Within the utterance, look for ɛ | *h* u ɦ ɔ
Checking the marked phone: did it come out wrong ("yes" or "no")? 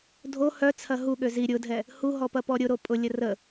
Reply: no